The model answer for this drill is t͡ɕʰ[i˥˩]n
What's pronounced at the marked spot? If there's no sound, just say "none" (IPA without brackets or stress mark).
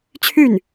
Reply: y˥˩